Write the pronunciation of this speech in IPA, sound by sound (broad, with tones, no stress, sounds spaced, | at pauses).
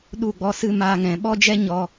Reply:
ɗ u˦˨ ɡ͡b ɔ˧ s ɨ˧ m aː˧ ŋ ɛ̃˨ ɓ ɔ˦ d͡ʒ ɛ˦ ɲ ɔ˧